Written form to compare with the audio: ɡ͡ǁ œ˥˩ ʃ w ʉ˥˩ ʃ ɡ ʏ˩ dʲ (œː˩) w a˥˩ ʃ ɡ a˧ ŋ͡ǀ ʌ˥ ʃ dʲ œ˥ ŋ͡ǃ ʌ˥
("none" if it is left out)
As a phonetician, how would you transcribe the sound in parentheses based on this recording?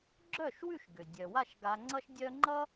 œ˩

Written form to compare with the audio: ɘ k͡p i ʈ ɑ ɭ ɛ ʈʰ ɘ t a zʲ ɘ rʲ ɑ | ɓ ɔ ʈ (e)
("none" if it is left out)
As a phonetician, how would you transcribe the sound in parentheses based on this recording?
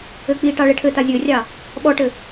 ɘ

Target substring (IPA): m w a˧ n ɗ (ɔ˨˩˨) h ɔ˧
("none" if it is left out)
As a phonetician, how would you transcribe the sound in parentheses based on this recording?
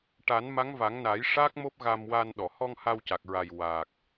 ɔ˨˩˨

